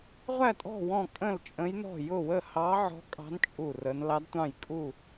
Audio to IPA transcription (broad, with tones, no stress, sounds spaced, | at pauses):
ʁʷ æ˥˨ tʼ ɔ̤˥˨ w ɔ̃˥˨ kʼ ə̃˥˨ l t͡ʃʼ ə̃˧˥ j n ɔ̤˥˨ j ʊ˥˨ w ə˥˨ h ɑ˧˥ ʕ ɔ̤˧˥ kʼ ɑ̤˧˥ n t͡ʃʼ u˥˨ r ə˧˥ n l ɑ˧˥ d tʷ ɑ̃˥˨ j kʼ u˥˨